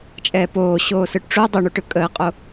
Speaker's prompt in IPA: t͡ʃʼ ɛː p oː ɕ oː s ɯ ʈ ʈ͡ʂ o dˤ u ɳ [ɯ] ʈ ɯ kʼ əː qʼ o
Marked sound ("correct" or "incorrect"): incorrect